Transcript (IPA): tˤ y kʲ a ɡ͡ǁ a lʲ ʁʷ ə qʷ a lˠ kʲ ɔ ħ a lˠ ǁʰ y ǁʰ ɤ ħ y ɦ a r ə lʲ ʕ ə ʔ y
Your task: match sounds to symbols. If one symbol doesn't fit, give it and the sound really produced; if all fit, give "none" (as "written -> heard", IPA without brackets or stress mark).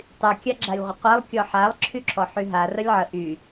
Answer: ɤ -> ɔ